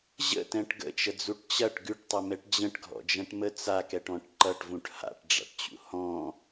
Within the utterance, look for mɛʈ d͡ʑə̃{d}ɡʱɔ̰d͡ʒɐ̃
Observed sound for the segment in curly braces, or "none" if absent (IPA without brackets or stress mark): ʈ